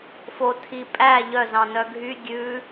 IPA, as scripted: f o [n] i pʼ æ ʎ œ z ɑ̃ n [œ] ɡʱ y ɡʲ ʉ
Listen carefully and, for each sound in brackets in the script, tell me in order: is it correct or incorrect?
incorrect: tʰ, correct

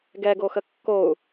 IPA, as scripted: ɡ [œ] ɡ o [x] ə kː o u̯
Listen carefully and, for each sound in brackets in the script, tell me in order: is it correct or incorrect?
incorrect: ɛ, correct

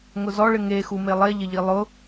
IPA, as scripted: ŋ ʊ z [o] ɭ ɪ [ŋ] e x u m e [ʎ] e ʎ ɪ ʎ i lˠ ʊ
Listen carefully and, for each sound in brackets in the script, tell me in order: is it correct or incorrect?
incorrect: ɔ, correct, incorrect: lˠ

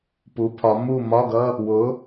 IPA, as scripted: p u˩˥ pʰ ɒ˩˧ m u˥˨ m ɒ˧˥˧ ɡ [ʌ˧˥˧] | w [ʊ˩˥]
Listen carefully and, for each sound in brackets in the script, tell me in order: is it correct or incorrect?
correct, correct

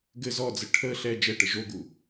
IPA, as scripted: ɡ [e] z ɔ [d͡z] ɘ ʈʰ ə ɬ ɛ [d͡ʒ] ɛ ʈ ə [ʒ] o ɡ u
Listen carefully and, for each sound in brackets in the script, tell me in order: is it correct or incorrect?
incorrect: ɘ, correct, correct, correct

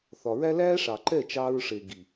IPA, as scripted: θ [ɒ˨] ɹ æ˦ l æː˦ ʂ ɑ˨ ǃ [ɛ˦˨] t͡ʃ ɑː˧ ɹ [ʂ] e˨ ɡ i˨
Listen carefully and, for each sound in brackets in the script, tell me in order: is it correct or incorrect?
correct, correct, correct

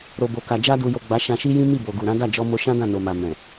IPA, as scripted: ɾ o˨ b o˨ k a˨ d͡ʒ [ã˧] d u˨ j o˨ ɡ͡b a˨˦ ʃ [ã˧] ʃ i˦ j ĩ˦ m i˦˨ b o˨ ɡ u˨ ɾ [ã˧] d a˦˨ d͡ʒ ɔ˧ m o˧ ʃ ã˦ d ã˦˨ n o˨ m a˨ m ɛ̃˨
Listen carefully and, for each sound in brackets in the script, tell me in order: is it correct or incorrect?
incorrect: a˧, correct, incorrect: ã˨˦

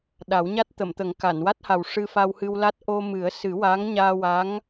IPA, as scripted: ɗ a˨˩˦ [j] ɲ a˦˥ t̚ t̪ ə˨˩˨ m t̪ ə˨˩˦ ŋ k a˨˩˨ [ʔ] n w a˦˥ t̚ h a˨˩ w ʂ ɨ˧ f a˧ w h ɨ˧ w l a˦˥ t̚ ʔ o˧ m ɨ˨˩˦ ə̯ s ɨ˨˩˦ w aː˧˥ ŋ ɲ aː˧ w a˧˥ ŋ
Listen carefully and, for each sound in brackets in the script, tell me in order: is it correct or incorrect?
incorrect: w, incorrect: none

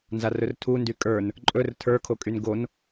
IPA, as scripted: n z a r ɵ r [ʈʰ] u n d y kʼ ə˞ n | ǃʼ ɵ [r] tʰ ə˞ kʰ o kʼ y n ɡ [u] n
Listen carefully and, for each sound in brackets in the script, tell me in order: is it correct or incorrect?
incorrect: tʰ, correct, incorrect: o

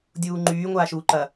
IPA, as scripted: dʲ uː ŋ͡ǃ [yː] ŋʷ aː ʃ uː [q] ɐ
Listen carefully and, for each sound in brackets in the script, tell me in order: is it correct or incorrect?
correct, incorrect: ǃ

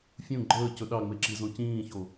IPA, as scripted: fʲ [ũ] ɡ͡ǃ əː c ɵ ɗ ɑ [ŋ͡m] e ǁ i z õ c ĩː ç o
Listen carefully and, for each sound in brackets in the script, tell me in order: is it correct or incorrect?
correct, correct

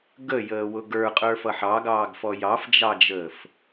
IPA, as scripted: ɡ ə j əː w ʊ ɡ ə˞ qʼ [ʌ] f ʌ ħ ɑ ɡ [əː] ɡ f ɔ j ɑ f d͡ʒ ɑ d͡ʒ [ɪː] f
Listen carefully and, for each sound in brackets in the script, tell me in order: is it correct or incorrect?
incorrect: ə˞, incorrect: ɑː, incorrect: əː

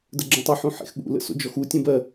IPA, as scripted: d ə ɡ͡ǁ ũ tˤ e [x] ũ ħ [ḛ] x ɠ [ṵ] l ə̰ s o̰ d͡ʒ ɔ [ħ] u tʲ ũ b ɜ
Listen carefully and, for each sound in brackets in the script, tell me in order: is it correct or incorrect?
incorrect: ħ, correct, correct, incorrect: x

